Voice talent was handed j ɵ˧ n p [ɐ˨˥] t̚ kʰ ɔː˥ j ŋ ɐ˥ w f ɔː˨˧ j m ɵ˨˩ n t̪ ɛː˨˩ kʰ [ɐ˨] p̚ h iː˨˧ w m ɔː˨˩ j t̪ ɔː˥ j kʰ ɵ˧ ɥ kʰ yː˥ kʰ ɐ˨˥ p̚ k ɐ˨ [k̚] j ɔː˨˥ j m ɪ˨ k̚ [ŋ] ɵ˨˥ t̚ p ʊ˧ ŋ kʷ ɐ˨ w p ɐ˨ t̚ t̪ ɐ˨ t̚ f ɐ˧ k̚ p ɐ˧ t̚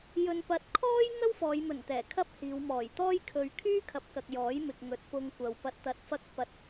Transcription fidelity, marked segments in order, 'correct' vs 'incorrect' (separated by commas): incorrect, incorrect, correct, correct